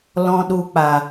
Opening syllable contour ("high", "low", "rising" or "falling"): low